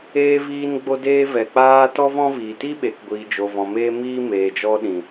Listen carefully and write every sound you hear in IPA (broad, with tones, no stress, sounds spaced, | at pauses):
eː˧ v iː˧ n ɡ͡b o˧ d eː˧ v ɛ˨ k͡p aː˧ t ɔ˦ v ɔ̃˦ v iː˨ t i˦ ɓ e˨ k ɡʷ iː˨ d͡ʒ o˨ v ɔ̃˨ m eː˦ m iː˦ m eː˨ d͡ʒ ɔ˧ ɗ ĩ˨